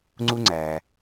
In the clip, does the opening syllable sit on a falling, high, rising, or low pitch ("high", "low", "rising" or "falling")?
high